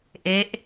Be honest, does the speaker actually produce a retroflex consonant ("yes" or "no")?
no